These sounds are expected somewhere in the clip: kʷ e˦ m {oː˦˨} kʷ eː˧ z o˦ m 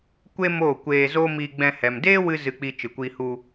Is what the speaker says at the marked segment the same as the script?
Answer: yes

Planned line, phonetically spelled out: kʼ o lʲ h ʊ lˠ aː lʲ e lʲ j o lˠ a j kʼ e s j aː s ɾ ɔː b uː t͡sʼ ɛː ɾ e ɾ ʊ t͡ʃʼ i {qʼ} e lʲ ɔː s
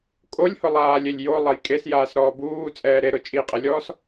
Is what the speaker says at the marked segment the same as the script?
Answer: yes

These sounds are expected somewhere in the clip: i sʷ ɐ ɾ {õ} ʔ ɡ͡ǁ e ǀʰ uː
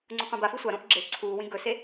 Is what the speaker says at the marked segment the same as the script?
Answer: yes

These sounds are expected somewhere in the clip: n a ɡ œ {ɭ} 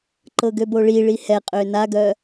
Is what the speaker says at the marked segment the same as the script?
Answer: no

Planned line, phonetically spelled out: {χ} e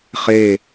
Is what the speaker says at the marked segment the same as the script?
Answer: yes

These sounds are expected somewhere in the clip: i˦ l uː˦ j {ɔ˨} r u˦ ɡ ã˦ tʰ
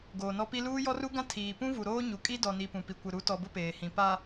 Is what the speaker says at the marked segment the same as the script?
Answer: no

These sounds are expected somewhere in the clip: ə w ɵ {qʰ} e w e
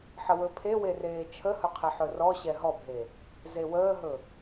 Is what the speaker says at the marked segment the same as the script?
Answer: no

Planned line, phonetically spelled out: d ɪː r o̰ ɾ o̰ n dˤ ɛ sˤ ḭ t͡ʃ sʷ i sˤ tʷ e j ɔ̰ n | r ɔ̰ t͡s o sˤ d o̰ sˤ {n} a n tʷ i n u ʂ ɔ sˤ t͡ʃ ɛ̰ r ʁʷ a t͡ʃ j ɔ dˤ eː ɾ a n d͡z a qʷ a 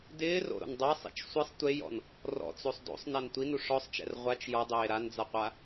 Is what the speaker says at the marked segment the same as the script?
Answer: yes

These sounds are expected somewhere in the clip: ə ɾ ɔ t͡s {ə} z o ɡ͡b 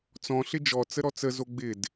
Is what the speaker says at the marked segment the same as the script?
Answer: yes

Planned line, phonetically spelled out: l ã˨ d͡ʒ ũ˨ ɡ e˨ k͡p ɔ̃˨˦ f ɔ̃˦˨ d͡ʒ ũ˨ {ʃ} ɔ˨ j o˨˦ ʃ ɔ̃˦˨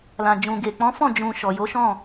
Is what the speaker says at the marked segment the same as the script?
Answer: yes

